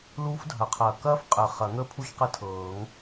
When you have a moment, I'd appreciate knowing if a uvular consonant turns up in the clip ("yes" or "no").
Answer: yes